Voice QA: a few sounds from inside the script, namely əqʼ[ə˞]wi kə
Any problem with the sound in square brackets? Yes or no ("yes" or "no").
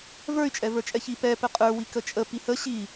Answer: no